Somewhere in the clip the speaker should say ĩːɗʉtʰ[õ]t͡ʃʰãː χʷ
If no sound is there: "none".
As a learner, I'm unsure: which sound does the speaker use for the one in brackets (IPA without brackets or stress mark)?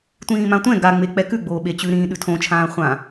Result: õ